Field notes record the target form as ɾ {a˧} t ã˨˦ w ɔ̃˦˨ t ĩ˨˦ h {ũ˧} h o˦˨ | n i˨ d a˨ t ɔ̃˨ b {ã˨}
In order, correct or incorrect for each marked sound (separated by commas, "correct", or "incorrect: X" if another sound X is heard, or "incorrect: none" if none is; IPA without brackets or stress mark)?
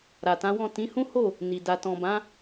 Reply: incorrect: a˨, incorrect: ũ˦, incorrect: ã˨˦